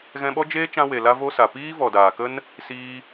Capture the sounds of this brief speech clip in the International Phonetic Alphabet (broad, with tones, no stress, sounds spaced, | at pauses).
ɣ ɛ̃˧ ɓ ɔ˦ d͡ʒ eː˦ t͡ʃ ã˧ w e˨ l a˦ v o˦ s a˨ p iː˦ v ɔ˨ d aː˨ k ə˦ n | s iː˧